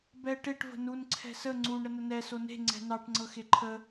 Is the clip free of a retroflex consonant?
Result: no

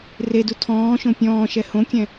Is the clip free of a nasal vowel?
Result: no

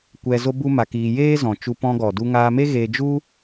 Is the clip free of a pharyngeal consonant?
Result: yes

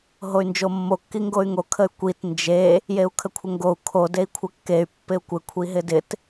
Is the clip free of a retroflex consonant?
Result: yes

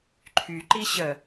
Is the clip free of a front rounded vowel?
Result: no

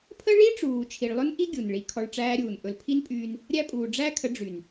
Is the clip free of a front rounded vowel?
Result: no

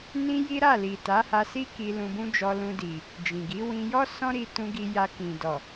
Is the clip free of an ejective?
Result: yes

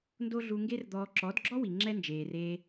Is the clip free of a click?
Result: no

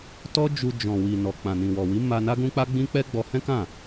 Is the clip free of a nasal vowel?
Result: no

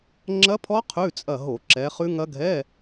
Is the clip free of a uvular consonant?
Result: no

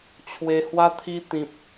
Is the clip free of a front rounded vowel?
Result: yes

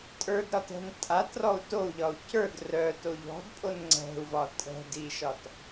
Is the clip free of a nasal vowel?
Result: yes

